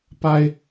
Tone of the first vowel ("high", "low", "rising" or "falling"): high